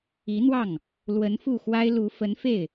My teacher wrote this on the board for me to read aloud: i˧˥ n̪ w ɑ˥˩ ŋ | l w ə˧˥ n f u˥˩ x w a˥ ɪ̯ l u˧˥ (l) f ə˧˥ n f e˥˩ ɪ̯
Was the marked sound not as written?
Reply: yes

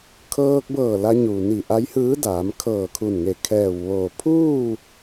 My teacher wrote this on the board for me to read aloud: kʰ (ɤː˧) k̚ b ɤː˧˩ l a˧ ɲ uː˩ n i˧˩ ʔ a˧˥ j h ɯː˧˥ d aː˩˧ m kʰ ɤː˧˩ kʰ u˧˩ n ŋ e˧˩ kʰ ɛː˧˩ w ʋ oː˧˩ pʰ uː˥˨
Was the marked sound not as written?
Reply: no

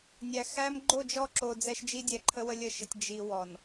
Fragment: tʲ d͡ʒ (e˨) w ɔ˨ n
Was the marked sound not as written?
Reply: yes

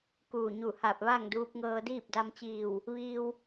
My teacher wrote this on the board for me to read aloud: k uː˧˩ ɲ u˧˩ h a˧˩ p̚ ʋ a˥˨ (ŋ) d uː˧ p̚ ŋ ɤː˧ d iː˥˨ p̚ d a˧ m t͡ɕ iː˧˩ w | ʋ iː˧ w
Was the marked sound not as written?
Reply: no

